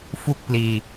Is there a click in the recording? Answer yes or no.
no